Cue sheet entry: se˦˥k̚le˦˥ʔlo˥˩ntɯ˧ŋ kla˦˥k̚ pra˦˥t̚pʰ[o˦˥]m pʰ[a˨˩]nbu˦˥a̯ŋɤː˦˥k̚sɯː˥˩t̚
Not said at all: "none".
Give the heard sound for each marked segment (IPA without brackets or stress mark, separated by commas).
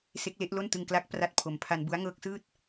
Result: o˨˩, a˧